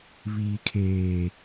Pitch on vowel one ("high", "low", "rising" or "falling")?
low